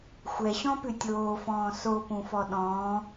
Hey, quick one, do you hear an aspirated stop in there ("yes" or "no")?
no